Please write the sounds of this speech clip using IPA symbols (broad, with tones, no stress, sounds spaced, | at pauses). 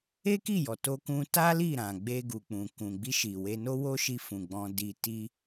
e˦ k i˦˨ j ɔ˨ t o˧ k ũ˧ t a˦ l i˦˨ ɾ ã˨ ɡ͡b e˧ ɡ u˨ k͡p ũ˨ k ũ˨ ɡ͡b i˧ ʃ i˨ w e˧ n o˦ w o˦ ʃ i˧ f ũ˨ ɡ͡b ɔ̃˧ d i˧ t i˦